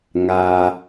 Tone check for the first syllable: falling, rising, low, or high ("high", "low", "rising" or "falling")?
low